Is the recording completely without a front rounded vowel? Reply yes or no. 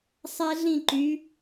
no